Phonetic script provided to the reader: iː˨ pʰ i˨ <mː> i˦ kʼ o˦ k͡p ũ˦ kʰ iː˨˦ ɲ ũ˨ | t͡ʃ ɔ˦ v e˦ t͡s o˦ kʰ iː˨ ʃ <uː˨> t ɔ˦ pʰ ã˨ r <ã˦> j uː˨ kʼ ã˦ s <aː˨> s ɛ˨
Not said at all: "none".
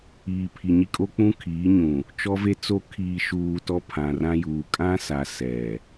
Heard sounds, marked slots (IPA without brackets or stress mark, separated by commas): ɲ, uː˨, ã˦, a˨